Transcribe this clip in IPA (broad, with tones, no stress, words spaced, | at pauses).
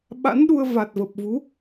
ɓa̰˧˥nɗu˧ə̯ va˨˩t̚və˨˩p̚vu˨˦